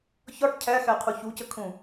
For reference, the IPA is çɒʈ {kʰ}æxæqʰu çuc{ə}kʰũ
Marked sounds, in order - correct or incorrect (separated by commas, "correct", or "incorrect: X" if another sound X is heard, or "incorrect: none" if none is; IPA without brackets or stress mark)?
incorrect: cʰ, correct